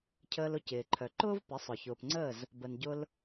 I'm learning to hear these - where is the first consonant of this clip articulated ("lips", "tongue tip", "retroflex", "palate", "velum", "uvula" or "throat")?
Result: palate